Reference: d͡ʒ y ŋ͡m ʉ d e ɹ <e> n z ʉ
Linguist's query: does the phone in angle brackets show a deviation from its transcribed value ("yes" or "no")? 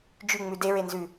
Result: no